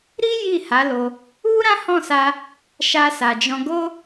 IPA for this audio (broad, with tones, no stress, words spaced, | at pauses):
ɾi˦ ji˦˨ha˨˦lo˧ | u˦ɾã˦hɔ̃˦˨sa˧ | ʃa˧sa˨d͡ʒɔ̃˧ ɡo˦